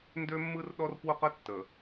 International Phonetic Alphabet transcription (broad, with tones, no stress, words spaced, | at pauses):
ndø˦mːɯ˦r ɗɔ˦r pwʊ˦qə˦ tːə˨